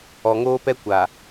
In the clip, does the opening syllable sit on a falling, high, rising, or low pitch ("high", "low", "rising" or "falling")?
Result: low